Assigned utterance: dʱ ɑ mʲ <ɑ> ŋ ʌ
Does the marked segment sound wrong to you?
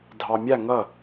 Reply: yes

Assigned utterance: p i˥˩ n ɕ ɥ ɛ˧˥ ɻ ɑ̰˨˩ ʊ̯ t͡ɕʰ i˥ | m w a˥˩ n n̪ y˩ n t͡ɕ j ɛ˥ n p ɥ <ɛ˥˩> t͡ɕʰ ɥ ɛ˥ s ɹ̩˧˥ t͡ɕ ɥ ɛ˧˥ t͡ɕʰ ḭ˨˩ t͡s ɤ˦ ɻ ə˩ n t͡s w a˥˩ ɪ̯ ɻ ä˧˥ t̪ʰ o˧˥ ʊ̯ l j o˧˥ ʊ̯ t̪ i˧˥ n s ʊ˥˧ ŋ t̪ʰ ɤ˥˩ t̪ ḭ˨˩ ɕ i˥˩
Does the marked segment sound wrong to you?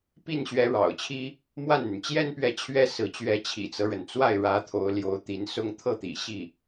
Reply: yes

